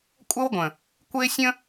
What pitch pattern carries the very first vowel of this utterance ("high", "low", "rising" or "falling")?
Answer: high